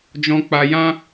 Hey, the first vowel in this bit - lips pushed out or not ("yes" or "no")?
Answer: yes